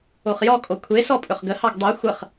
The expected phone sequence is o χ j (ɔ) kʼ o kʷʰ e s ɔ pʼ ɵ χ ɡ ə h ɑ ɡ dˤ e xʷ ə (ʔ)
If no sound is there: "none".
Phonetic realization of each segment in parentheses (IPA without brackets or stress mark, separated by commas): ɔ, χ